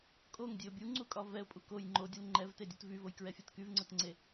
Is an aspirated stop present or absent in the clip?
absent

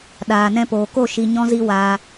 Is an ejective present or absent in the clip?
absent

